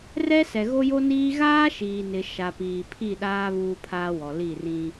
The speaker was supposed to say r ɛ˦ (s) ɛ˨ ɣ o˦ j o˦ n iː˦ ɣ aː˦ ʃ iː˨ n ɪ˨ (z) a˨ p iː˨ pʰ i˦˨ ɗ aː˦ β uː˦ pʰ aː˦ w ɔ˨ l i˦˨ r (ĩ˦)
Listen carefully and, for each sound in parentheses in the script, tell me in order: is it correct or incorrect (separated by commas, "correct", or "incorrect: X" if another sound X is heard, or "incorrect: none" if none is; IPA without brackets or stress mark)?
correct, incorrect: ʃ, correct